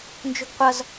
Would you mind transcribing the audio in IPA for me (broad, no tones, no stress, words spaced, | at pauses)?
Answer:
nd͡ʒʊɡqʷʌz